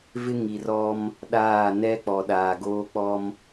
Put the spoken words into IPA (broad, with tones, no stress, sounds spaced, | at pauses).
v ɪ˦ ŋ i˨ r ɔ˦ m | ɗ aː˦˨ n ɛ˦ k͡p ɔ˨ ɗ aː˨ ɡ oː˦ k͡p ɔ˦ m